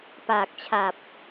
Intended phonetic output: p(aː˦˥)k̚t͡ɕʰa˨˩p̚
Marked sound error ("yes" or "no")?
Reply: yes